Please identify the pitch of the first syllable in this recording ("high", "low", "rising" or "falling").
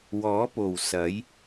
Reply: rising